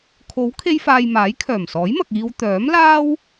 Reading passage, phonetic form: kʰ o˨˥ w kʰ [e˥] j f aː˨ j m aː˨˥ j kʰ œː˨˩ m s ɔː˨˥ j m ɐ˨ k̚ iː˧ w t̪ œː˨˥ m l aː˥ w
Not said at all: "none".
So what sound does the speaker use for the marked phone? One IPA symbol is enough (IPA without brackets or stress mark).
e˧